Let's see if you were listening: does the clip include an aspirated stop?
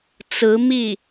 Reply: no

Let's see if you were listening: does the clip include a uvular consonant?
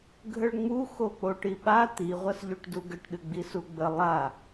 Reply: yes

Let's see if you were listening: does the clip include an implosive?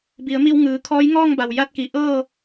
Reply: no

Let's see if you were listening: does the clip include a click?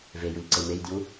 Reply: yes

